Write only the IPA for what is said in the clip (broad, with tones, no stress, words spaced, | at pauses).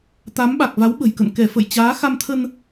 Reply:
t̪a˨˦mɓa˨˩k̚ va˨˦wɓə̤˨˩jkə̰˧˨n kɛ˧˩fə̰˧˨j t͡ɕaː˨˦ xa˧mt̪ʰə˧n